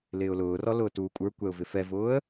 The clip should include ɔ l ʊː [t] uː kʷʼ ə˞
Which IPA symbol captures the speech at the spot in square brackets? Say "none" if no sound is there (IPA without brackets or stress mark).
t